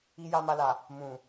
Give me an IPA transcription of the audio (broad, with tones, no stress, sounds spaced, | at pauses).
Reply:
i˨ j a˨ m a˨ l a˨ | m ũ˨